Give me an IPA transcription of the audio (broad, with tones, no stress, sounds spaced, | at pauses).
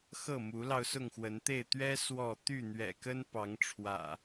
x ɤ˥˨ m u˨˦ l ɑ˧ ʊ̯ s ʊ˥˨ ŋ x w ə˨˦ n t̪ e˥˨ ɪ̯ t̪ ɥ ɛ˦ s w ɔ˥˨ t̪ y˥˨ n̪ ɥ ɛ̰˨˩ k ə˦ n p ɑ˨˦ ŋ ʈ͡ʂʰ w ä̰˨˩